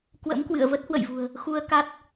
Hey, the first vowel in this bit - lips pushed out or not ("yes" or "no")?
no